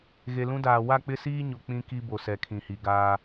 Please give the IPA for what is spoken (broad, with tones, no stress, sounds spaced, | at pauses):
ɣ e˨ l ũ˦ d aː˨ w a˦˨ k͡p ɪ˦ s iː˦ ɲ o˨ k͡p ĩ˦ k i˦ b o˨ s ɛ˨ kʰ ĩ˨ h i˨ ɡ aː˦